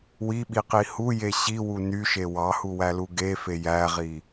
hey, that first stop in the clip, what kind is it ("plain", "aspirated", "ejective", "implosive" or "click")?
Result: implosive